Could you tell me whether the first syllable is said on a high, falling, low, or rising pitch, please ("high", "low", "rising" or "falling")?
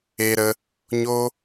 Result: high